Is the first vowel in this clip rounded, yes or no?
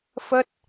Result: no